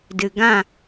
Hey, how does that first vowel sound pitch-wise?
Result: low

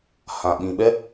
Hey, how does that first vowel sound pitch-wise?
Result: low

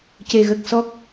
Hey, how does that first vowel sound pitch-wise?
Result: low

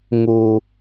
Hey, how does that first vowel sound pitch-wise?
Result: low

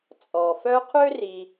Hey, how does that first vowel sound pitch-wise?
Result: low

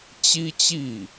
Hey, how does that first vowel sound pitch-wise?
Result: high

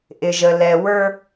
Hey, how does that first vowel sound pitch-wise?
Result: low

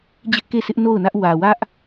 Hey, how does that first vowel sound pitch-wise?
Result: high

